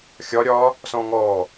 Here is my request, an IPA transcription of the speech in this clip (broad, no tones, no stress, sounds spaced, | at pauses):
xʲ ɒ ɾʲ ɒ | s ɔ̃ ŋ ɔ